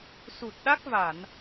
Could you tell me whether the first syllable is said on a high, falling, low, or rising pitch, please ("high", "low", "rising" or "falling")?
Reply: low